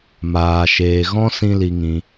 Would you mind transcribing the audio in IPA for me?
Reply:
m aː˨ ʃ eː˨ ɣ ɔ̃˦ s ĩ˦ l i˧ ŋ ĩ˧

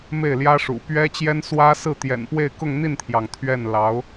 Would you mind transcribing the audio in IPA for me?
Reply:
m e˥˩ ɪ̯ l j ä˥ ʂ ṵ˨˩ p ɥ ɛ˥ t͡ɕ j ɛ˥ n s w ä˥ s ɹ̩˥˩ t̪ j ɛ̰˨˩ n p w e˥˧ ɪ̯ k ʊ˥˧ ŋ n̪ i˥˩ n t̪ʰ j ɑ˩ ŋ t̪ʰ ɥ ɛ˥˩ n l ɑ˧˥ ʊ̯

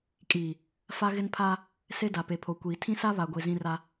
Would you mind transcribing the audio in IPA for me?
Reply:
kʼ iː˨ | f a˦ ɣ ɪ˦ n pʰ aː˦ | s e˦ d a˨ p e˨ pʰ o˨ kʷ iː˨ tʰ ĩ˦ s a˦ β a˨ ɡʷ e˨ z ĩ˦ r a˦

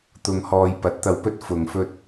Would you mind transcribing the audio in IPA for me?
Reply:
t̪ ʊ˧ ŋ h ɔː˧ j p ɐ˨˥ t̚ t̪ ɐ˧ w p ɵ˥ t̚ f ʊ˨ ŋ f ɵ˧ t̚

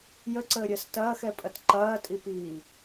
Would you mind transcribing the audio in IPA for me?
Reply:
j ə ǀ əː ɾʲ əː s t ɐː x ɛ pʼ ɐ t ǃ ɐː tʼ i p iː

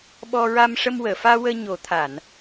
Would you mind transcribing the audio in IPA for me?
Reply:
ɓ ɔ˧ ɹ a˧ m ʂ ə˧ m w əː˨˩˨ f aː˧ w əː˧ ɲ o˨˩˦ t̪ʰ a˨˩˨ n

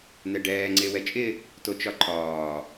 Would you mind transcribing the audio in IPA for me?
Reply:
n ɛ ɖ ɛː ŋ͡ǀ e w ɛ t͡ʃʼ ɪ | t o t͡ʃ ɒ ǃʰ ɒː

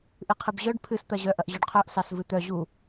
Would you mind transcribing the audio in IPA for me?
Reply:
ʔ ɨ qʰ ɨ b ʑ œ ɖ pʰ ɨ s t̪ ɐ ʑ œ ʔ ɐ ʔ ʑ œ ɖ qʰ œ ʔ s ɑ s v ɨ t̪ œ ʑ u

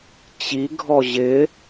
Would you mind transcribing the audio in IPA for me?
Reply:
t͡ɕ i ɡʱ ɔ ʑ ɪ

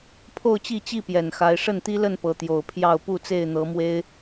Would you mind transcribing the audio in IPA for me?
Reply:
pʰ o˥˨ ʊ̯ t͡ɕ i˥˨ t͡ɕ i˥˨ p j ɛ˨˩ n x a˨˦ ɪ̯ ʂ ə˥˨ n t̪ i˦ l ə˥˨ n p ɤ˨˦ t̪ j o˨˩ ʊ̯ pʰ j ɑ˥˨ ʊ̯ p u˥˨ t͡s e˥˨ ɪ̯ n̪ ɤ˨˦ m w e˦ ɪ̯

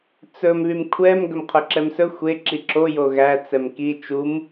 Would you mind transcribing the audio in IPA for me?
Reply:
t͡s ɵ m β y m kʷʰ ɛ m ɡ œ m qʰ œ ǁ ɛ m s ɵ xʷ e ǁ i ǁ o j o ɣ æ t͡s ɛ m k i t͡ʃ u m

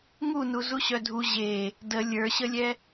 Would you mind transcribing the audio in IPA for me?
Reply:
ŋ u n u z u ɕ œ dʱ u ʑ e | d ə lʲ ə˞ ɕ ə lʲ ɛ

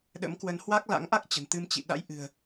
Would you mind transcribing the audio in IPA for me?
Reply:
ɗ ə̰˧˥ m k w ə˨˦ n h w a˦˥ k̚ l a̰˧˥ ŋ ʔ a˦˥ k̚ t͡ɕ ə̤˨˩ n t̪ ɨ˧ m t͡ɕ ḭ˧˨ ɗ a̰˧˥ j ʔ ɨ̤˨˩ ə̯

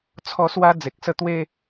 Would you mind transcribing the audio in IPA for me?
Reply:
t͡sʰ ɔ˥˧ s w a˦ d͡z e˨ k̚ s ə˦ t̪ w e˦

